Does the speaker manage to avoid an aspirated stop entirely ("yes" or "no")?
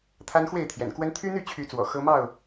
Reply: no